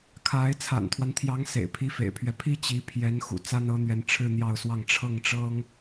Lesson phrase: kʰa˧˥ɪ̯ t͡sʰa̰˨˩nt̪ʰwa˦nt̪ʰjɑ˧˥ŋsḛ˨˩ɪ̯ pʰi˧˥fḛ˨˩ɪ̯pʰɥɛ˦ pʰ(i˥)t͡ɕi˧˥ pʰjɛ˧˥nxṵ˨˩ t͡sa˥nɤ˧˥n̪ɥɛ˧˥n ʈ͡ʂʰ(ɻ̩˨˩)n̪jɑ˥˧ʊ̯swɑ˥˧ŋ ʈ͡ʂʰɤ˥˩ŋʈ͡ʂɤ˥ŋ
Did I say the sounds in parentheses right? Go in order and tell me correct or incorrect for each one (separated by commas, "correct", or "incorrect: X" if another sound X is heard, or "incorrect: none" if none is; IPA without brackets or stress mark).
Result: correct, incorrect: ɻ̩˥˧